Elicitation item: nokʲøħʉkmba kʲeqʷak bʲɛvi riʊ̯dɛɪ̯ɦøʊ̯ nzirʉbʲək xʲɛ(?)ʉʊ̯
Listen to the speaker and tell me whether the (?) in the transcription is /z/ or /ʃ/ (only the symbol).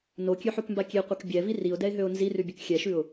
ʃ